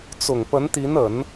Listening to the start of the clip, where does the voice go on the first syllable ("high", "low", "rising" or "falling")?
low